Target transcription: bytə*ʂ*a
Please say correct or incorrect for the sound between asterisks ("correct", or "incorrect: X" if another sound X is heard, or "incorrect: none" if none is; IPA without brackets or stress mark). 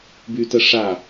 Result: correct